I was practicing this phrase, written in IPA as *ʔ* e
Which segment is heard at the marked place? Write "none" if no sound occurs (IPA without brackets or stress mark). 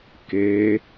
k